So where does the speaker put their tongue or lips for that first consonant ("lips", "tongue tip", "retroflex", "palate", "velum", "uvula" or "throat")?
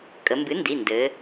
velum